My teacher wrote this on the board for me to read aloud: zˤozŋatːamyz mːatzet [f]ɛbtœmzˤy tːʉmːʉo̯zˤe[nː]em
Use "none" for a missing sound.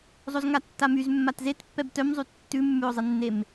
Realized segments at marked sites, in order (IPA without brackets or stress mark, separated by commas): pː, nː